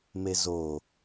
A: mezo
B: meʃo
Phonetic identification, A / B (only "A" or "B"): A